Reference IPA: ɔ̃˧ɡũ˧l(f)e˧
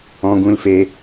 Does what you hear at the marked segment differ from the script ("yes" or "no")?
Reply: no